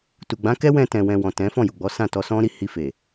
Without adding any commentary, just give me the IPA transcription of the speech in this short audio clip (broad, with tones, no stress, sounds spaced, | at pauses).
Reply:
t u˨ ɡ͡b ã˨˦ k ɛ˦ w ɛ̃˧ t ɛ̃˨ w ɛ̃˨ w ɔ̃˨ t ɛ̃˨˦ f ɔ̃˦˨ j u˨ ɡ͡b ɔ˨˦ s ã˦˨ t ɔ˧ s ɔ̃˦ ɾ i˦˨ h i˧ f e˨